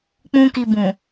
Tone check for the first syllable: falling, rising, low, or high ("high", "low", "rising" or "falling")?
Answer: high